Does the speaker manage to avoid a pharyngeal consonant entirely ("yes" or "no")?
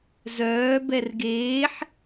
no